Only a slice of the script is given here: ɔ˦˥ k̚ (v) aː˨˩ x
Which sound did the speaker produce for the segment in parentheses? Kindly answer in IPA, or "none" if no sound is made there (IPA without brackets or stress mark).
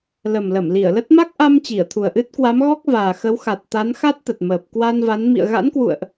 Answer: v